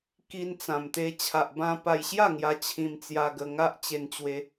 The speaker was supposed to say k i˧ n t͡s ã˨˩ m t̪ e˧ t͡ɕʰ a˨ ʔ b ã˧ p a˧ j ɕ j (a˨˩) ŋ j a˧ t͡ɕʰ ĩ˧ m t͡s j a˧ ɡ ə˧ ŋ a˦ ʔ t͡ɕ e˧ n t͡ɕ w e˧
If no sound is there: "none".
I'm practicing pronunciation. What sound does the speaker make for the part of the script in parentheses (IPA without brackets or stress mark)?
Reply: a˥˧